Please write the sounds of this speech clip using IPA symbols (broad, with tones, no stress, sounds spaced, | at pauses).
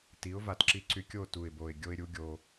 t i˩˥ ʊ̯ v a˧ t ǁ i˧ ǀ y˧ kʲ o˥˧ t u˨˩ ɪ̯ b o˨˩ ɪ̯ ɡʲ o˧ ɪ̯ ɾʲ u˧ ɡʲ o˨˩